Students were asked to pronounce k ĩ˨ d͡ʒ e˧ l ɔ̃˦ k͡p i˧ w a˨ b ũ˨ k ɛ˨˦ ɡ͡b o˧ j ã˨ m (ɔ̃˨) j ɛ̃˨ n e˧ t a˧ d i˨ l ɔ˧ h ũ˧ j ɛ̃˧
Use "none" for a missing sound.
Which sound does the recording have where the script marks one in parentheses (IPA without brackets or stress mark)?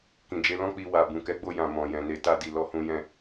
ɔ̃˨